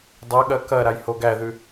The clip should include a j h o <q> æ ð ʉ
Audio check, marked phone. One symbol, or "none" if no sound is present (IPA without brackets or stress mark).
ɡ